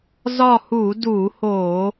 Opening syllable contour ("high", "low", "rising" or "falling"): falling